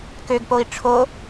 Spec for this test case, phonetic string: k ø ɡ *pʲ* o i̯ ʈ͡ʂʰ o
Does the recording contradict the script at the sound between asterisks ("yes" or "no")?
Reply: yes